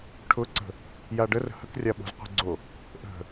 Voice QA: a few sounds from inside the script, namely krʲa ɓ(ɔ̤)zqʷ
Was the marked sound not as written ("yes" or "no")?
yes